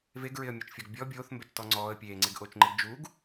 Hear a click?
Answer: yes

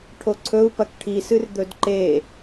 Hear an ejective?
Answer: no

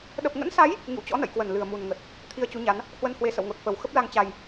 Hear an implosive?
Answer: yes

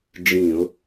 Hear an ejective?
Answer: no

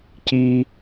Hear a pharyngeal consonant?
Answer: no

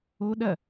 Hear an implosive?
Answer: yes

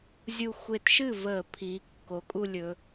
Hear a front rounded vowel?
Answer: no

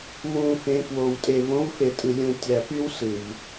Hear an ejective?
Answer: yes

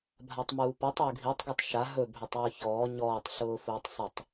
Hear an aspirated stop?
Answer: no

